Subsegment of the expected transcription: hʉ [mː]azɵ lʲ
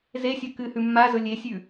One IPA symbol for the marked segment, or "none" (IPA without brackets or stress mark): mː